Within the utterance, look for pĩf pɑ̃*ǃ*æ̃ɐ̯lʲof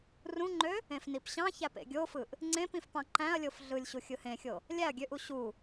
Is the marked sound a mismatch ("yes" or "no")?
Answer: no